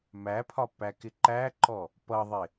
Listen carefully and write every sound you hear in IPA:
m æ pʰ ɒ p æ k ɪ ǃ æ ǃ ɔ | p ʌ ðˤ ɪ

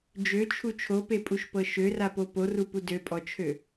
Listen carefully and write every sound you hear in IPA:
d͡ʒ ø t͡ʃʰ u t͡ʃʰ o p e pʼ u ʃ p ɤ ʃ ø r a p o p o r u p u d ø pʼ ɔ t͡ʃʰ ø

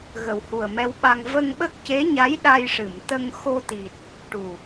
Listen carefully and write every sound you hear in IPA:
ɣ ə˨˩ w h u˨˩ ə̯ m ɛ˧ w ɓ a˧ ŋ v ə˧ ŋ ɓ ə˦˥ k̚ c e˧˥ ɲ a˧˥ j ɗ a˧ j ʂ ɨ˨˩˨ m t̪ ə˧ ŋ x o˧ t̪ i˨˩ t̚ | ʈ u˨˩

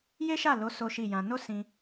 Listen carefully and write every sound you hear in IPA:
j e˦ ʃ a˦˨ l o˨˦ s o˦ ʃ i˦˨ j ã˧ n o˦ s ĩ˧

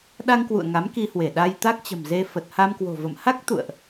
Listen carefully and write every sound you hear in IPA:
ɗ a˧ ŋ k w ṵ˧˨ ə̯ ŋ a˨˦ m k i˧ h w e˧˩ ɗ a˧ j t̪ a˦˥ k̚ t͡ɕ ə̤˨˩ m z e˧ f ə˨˩ t̚ h a˧ m k w o̤˨˩ v ə̰˧˨ m h a˦˥ k̚ t̪ ṵ˧˨ ə̯ ʔ

